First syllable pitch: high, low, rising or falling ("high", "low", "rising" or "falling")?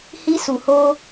high